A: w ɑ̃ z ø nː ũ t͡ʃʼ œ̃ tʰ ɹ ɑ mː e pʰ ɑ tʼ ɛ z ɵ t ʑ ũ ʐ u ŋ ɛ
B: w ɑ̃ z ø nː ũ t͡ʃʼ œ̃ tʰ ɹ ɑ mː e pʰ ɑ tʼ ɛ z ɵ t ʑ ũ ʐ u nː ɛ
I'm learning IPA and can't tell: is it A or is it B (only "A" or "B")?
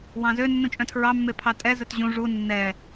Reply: B